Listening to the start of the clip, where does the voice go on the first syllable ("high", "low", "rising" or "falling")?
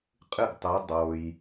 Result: falling